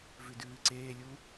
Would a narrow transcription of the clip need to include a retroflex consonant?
no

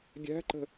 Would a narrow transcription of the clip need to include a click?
yes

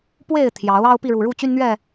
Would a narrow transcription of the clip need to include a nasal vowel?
no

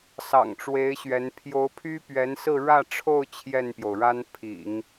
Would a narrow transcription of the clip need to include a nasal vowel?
no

